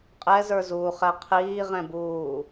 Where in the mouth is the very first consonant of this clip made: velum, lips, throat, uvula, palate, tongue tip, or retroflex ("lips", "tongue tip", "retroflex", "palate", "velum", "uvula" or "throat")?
uvula